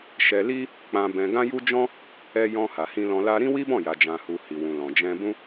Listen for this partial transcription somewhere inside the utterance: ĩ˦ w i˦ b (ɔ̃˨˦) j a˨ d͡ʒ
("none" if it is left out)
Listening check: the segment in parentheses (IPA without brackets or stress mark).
ɔ̃˦˨